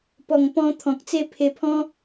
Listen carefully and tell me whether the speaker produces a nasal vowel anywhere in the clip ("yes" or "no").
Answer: yes